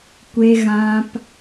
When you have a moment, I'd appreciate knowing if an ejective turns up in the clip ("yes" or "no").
no